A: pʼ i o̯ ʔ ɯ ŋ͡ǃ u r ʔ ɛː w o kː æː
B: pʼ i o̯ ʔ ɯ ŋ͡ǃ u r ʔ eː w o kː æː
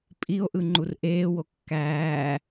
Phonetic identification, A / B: B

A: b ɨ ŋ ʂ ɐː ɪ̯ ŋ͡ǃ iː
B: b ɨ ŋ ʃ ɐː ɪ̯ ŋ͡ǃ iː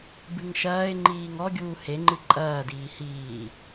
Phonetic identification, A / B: B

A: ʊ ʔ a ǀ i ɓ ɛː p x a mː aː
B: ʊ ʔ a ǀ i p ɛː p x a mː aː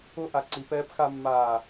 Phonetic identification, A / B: B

